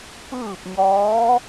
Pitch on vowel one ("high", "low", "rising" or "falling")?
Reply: falling